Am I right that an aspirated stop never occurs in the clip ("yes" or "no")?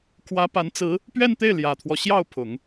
no